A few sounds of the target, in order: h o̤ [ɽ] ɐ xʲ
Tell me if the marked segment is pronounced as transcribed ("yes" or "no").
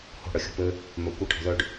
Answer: yes